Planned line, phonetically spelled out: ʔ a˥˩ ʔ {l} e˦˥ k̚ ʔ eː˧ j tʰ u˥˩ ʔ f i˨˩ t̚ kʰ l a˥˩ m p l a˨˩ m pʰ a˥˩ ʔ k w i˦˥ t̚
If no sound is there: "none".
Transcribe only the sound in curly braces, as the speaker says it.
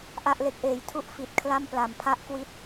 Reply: l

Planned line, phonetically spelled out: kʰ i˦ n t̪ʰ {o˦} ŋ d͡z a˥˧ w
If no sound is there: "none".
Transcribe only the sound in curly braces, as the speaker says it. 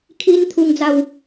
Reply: u˦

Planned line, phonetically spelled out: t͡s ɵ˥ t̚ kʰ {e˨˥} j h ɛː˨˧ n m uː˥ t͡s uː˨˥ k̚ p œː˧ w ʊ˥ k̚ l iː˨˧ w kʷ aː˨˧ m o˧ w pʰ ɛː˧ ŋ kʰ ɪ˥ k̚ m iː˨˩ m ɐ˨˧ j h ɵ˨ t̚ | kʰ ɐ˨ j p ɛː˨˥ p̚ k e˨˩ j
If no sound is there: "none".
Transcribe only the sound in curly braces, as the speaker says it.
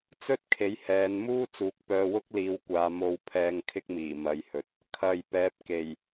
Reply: e˨˥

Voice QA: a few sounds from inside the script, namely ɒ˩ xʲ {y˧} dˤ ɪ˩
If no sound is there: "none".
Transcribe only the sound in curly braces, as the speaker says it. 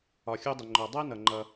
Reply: u˧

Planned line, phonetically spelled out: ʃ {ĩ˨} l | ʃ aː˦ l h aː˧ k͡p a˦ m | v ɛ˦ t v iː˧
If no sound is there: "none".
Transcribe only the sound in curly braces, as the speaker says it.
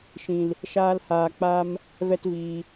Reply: ĩ˨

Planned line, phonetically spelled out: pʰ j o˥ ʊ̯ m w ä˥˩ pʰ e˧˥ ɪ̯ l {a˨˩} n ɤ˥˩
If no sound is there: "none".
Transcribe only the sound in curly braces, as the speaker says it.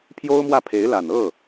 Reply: a˨˩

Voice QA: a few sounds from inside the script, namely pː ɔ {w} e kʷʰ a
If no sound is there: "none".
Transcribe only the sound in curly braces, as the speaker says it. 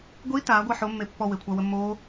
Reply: w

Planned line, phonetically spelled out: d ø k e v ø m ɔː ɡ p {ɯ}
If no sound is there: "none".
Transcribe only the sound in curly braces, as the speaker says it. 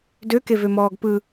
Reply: ɯ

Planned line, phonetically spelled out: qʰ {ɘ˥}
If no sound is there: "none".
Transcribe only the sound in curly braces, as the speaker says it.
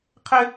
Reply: ɘ˥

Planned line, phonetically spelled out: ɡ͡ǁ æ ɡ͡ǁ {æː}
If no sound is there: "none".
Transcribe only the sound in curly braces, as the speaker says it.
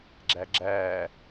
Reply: æː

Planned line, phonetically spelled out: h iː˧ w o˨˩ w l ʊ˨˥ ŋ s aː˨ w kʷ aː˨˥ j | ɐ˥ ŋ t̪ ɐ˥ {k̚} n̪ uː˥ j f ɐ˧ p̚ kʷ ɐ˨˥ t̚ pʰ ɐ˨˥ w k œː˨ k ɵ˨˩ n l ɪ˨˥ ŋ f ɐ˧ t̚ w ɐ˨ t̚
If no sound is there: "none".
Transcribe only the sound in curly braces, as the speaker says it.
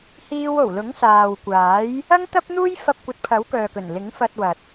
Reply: p̚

